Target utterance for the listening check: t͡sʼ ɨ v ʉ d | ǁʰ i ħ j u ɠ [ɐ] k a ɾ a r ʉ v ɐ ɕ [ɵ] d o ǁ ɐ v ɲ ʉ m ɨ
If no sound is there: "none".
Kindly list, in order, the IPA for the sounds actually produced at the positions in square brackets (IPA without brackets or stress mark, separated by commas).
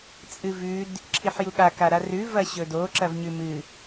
a, ɵ